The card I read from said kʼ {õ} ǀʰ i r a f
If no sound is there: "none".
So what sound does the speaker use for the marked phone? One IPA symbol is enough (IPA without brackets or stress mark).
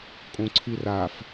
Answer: õ